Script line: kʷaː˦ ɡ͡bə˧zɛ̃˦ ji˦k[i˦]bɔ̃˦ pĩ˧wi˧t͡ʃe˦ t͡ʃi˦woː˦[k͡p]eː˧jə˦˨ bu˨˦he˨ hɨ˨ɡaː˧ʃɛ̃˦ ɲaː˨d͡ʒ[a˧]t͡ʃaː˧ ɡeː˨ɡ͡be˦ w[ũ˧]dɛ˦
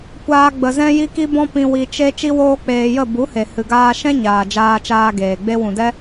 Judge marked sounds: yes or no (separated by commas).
yes, yes, no, no